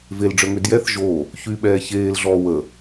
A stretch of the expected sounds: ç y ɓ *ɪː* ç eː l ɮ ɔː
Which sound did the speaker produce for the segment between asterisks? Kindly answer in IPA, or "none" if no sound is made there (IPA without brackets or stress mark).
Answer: ɛː